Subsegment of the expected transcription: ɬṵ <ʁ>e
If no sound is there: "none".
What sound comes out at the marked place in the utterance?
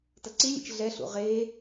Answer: ʁ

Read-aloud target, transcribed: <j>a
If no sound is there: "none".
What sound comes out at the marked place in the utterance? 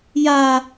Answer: j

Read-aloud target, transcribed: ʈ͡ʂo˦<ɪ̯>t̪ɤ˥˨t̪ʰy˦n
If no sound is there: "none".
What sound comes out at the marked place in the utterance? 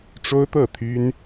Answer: ʊ̯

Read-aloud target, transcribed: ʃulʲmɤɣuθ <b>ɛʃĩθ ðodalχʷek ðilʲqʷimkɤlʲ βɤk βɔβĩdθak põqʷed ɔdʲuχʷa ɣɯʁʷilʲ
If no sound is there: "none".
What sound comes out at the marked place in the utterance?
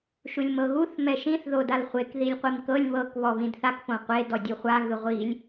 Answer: m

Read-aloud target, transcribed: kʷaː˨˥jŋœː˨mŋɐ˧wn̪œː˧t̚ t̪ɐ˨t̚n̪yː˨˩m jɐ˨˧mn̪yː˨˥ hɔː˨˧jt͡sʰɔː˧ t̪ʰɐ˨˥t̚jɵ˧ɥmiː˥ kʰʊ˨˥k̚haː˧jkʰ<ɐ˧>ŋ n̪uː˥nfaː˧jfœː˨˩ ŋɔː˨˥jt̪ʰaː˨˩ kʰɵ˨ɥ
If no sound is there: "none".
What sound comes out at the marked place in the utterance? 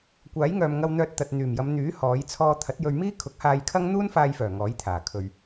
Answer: ɐ˥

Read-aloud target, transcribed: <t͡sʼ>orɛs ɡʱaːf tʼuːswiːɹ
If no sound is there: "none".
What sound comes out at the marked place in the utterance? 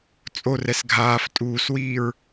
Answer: t͡sʼ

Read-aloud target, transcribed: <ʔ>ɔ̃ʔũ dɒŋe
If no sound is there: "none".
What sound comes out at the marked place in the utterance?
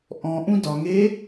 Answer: ʔ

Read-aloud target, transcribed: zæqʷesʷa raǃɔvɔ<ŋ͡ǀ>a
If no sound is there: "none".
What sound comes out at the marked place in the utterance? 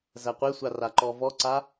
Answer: ǀ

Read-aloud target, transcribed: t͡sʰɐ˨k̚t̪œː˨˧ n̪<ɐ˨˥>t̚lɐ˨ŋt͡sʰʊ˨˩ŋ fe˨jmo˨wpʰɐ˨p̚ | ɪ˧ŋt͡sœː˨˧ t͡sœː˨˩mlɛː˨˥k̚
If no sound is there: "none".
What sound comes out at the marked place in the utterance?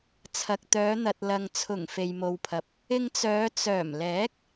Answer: ɐ˨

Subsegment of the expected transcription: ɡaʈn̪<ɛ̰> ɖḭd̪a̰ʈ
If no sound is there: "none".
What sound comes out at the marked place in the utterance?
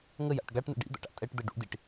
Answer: ə̰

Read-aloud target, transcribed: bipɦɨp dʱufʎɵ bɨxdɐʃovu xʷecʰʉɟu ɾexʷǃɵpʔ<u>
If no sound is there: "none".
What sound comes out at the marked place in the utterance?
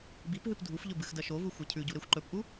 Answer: u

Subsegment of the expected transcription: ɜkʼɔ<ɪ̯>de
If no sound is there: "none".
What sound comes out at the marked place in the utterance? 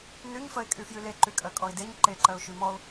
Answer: ɪ̯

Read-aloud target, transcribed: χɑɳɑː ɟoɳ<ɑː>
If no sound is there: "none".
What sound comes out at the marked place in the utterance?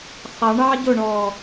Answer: ɔː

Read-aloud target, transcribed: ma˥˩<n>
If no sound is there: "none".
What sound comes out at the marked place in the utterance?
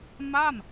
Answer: m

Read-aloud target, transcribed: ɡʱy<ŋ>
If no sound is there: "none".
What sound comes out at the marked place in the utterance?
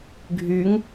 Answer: ŋ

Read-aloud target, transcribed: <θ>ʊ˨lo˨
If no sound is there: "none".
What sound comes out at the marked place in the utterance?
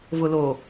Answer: v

